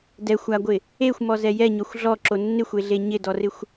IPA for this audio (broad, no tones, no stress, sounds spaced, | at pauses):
d ɛ xʷ a ɡʷ ɪ | e xʷ m ɔ z ɛ j ɛ ɲ ɔ xʷ ɮ ɔ ǁ o nː ɪ xʷ e ɮ e ɲ ɪ d ɔ r ɪ xʷ